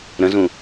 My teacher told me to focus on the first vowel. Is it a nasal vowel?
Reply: yes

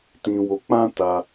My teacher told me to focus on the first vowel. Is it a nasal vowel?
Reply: yes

